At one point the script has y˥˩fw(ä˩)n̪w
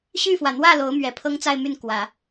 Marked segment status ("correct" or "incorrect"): correct